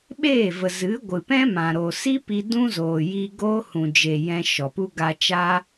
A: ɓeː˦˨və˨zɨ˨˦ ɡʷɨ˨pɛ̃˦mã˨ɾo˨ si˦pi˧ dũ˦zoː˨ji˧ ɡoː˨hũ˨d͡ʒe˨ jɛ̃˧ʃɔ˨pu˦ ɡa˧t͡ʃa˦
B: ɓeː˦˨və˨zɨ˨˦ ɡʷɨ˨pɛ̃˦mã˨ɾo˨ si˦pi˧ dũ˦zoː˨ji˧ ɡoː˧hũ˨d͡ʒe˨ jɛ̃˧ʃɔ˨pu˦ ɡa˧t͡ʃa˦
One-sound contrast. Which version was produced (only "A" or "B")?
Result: B